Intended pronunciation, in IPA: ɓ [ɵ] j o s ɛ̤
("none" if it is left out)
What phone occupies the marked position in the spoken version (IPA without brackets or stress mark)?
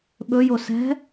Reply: ɵ